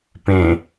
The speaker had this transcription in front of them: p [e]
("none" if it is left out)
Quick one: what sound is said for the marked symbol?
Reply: ẽ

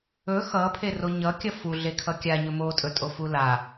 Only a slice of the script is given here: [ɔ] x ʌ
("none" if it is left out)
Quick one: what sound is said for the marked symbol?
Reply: ɵ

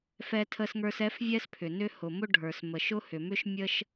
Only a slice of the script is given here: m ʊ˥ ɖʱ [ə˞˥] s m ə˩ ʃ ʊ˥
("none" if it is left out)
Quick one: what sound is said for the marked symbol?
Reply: ə˞˩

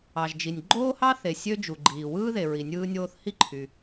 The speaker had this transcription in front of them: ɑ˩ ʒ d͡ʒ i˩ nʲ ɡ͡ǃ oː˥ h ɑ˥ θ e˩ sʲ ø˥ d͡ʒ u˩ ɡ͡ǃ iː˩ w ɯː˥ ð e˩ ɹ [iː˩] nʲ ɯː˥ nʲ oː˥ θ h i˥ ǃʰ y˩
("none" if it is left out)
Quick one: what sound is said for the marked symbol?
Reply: i˩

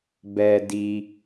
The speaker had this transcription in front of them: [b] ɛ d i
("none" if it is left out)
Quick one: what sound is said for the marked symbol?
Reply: b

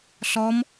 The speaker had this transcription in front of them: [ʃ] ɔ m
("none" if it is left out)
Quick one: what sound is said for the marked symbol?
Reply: ɬ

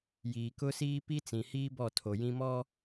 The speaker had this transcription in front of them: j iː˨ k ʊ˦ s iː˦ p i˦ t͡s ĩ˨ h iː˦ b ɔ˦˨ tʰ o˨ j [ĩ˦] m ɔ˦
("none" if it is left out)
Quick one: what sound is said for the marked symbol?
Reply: ĩ˦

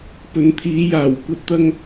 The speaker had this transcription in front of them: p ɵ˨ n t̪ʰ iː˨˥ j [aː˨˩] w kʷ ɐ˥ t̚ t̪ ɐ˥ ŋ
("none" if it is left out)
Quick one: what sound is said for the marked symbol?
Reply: aː˨˩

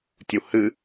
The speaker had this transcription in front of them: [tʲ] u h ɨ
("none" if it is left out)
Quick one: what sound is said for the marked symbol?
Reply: tʲ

